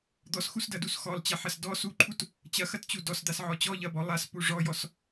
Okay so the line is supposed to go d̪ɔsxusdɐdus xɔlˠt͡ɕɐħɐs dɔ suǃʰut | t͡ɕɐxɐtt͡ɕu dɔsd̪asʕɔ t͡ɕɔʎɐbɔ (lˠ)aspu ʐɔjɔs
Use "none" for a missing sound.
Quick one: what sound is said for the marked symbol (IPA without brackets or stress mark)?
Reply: lˠ